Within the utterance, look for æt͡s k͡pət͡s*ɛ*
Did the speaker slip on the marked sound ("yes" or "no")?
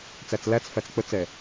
no